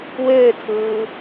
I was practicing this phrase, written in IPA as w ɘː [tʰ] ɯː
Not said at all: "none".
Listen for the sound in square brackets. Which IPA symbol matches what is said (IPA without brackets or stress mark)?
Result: tʰ